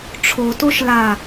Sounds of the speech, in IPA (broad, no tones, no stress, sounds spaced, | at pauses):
ʈ͡ʂʰ o t o ʃ l a